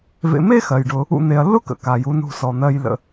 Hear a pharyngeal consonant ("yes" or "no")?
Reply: no